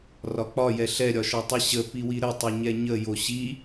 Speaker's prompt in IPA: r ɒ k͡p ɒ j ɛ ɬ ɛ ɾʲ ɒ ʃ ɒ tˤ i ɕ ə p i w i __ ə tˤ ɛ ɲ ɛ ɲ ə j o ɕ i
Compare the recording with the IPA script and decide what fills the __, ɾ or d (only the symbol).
ɾ